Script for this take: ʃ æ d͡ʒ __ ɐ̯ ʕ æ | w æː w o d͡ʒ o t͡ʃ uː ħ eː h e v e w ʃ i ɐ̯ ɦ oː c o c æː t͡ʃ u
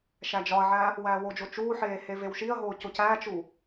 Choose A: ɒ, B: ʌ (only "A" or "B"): A